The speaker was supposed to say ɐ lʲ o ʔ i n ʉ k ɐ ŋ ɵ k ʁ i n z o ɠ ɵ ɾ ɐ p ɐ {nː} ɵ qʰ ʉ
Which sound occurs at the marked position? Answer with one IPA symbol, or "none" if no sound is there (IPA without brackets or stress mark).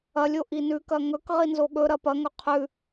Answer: ŋ